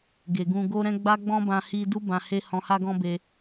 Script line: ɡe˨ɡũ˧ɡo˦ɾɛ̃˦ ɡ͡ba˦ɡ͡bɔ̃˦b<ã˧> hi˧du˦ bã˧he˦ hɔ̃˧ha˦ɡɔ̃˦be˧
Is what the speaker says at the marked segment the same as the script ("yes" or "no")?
yes